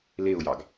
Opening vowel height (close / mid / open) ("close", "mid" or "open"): mid